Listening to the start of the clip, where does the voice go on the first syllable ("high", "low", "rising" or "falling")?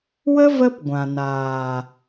high